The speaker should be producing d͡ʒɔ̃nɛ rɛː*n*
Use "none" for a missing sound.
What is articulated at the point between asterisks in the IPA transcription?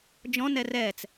t͡s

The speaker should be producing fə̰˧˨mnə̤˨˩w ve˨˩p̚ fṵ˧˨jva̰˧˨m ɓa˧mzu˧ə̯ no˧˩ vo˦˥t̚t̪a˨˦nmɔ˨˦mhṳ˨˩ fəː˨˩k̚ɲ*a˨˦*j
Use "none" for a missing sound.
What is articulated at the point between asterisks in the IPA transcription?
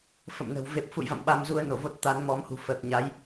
a˨˦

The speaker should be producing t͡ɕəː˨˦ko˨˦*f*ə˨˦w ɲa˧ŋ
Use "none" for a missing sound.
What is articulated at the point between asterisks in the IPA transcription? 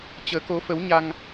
f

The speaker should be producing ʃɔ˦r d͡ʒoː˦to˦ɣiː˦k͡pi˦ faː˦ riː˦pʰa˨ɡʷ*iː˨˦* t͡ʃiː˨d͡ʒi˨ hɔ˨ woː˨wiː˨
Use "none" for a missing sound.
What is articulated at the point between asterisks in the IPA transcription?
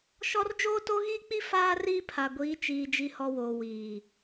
iː˨˦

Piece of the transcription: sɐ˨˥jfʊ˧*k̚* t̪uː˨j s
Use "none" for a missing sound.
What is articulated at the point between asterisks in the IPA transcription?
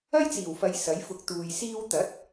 k̚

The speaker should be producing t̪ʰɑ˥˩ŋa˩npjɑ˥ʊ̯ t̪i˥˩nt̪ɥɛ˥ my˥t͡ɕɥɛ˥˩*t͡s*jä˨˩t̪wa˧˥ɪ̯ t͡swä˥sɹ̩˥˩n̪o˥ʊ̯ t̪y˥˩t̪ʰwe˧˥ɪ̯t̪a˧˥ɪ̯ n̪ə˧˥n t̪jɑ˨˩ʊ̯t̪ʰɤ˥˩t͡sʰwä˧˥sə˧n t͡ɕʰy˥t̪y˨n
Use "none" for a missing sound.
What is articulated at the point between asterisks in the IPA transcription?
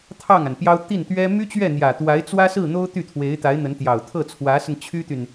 n̪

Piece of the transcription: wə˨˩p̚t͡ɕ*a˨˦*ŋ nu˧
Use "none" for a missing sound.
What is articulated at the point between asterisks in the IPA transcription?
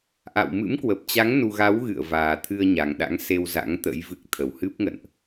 a˨˦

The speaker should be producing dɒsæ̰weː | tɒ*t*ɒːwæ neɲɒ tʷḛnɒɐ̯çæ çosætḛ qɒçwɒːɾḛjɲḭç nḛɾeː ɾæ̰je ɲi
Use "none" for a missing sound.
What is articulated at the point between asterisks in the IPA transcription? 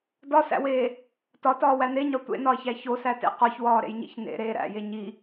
t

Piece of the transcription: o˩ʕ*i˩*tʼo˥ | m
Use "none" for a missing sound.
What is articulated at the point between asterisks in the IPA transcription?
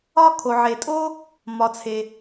e˩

